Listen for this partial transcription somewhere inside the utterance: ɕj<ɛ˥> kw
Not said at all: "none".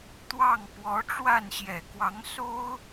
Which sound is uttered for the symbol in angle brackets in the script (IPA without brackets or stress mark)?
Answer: ɛ˨˩